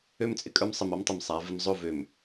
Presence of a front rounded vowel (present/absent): present